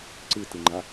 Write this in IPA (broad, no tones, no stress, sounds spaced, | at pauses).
ǀ ɨ t ɨ ŋ͡ǃ a